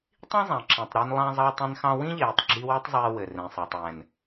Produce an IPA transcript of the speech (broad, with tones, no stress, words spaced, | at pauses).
tˤĩ˦zˤã˨ǁẽ˨tˤɾe˧n lˠã˧zˤɑː˧tˤẽ˧nxɑ̃˧ wĩ˦ʎeː˨tˤɡ͡ǁi˧ we˦tˤzˤeː˧ wɘ˨rẽ˨sˤa˨tˤ wɛ̃˨n